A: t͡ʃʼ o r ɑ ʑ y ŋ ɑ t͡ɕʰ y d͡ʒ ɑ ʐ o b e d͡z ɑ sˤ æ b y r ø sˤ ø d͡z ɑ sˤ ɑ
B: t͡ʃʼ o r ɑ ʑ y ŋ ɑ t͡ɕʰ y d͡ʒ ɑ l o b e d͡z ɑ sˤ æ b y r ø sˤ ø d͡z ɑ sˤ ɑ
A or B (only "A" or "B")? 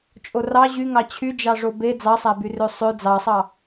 A